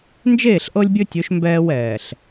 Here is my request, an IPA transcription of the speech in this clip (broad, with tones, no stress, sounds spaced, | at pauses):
n d͡ʒ eː˦˨ ɬ ʔ ɤ˦ lʲ bʲ ɵ˦ tʲ ɵ˨˦ ʃ m b ɛː˦ w ɛː˨ ɬ